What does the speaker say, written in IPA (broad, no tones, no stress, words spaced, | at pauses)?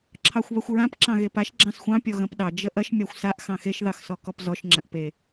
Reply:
ǁʰɑxʷβɐxʷɹãp ǁɑ̃ɣepaʃ ɡ͡ǁɑ̃sxʷɑ̃ pʲɔɣɐ̃pɗɑ d͡ʒəʔɐʃ mʲɑxʷsaʔ xɑ̃xeʃ ðɑxsɔkɔpzɔʃ ŋ͡ǁɐ̃ʔpe